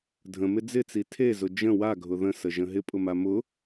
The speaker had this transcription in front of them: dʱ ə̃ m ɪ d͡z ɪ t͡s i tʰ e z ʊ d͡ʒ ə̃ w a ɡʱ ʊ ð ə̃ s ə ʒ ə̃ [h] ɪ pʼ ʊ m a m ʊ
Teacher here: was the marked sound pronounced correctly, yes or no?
no